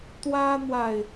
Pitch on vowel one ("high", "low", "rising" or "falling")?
high